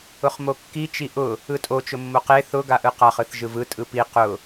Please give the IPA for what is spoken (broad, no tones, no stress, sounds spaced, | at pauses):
ʊ χ m o kː i t͡ʃ i ʔ ʊ | ɯ tʼ o t͡ʃ ʊ mː o q e θ ʊ ɡ a ʔ ɯ q a χ ɯ θ ʒ ɯ v ɯ tʼ ɯ p i q ʊ